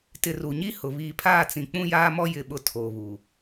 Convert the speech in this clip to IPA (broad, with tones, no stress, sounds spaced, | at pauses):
t ɪ˨ r u˨ ɲ i˦ h ʊ˨ β iː˨ pʰ aː˦˨ t͡s ĩ˨ k͡p ũ˦ j aː˦ m ɔ˦ j ɪ˦˨ ɓ ʊ˦ tʰ oː˨ β u˨